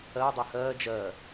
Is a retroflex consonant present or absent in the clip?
absent